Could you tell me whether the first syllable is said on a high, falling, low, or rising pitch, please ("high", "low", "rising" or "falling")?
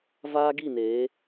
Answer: high